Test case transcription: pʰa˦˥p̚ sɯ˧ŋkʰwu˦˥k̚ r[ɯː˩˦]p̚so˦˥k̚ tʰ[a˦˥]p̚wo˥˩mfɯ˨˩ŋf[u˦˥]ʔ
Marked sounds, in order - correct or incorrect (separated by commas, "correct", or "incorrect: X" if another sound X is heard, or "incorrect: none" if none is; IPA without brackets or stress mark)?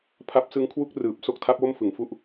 incorrect: ɯː˨˩, correct, correct